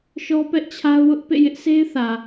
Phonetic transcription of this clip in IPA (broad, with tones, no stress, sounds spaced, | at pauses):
ʃ ɔ˦ p ɛ˦ ʔ t͡ɕʰ a˦ ʊ̯ w ʊ˦ ʔ p ḛ˦˨ j ɪ˦ ʔ sʰ e˦ ɪ̯ θ ä˨